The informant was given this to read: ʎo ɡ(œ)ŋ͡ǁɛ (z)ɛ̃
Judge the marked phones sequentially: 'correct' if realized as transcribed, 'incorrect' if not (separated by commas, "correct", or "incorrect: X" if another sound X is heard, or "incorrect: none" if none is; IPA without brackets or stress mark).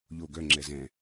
correct, correct